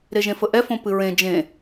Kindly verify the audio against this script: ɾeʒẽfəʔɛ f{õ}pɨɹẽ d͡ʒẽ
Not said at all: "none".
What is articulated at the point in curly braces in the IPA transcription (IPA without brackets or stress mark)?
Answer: õ